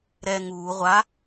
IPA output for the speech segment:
ɾɛ ŋuː ʁʷa

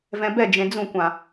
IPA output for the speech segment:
vɛ̃bɛ d͡ʒẽd͡zũkʷã

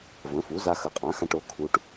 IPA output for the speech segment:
və̃˩˥fu˩˥za˧ xə˩˥qʼã˩˥xã˧ʈ o˩˥ kʰu˧ʈ

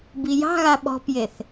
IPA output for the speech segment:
bijɑ̤ɣa ɓɔ̤pjeθ

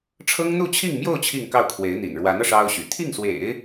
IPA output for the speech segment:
ʈ͡ʂʰɤ˥ŋn̪u˥˧t͡ɕʰi˥˧ŋmjo˥˧ʊ̯ t͡ɕʰi˥˧ŋkɑ˥˩ʊ̯kʰwe˧˥ɪ̯n̪ḭ˨˩n ɻwa˧˥nɤ˧ ʂɑ˥ʊ̯ɕy̰˨˩ t̪ʰi˥˩ŋswḛ˨˩˦ɪ̯

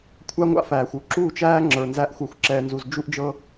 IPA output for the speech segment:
kʷʰa˦ŋʷa̰˦fæː˨xʷ u˦ǁuː˦˨t͡ʃæː˦ ŋ͡ǁə˞˨nzæ˦ʔ xʷə˞˨xʷǁɛː˨nzu˨z d͡ʒu˦ʔd͡ʒɤ˦

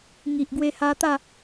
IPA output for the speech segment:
ŋi˨ʔɡwe˧ha˧t̪a˥˧

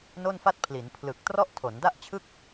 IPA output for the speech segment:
no˥˩nfa˥˩t̚pʰli˩˦n pʰlɯ˨˩k̚ trɔ˥˩ʔtʰo˩˦nda˥˩ʔt͡ɕʰɯ˥˩k̚

